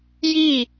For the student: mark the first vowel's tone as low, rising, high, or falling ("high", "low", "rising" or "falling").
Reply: falling